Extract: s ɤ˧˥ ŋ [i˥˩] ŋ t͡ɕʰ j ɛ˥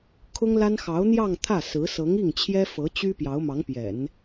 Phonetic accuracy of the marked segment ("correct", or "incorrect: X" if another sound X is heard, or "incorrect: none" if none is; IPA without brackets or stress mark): correct